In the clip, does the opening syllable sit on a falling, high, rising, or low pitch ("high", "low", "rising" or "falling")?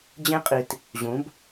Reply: high